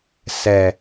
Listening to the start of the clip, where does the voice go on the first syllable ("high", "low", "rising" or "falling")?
low